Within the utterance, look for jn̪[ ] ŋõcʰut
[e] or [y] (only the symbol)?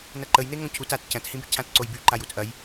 e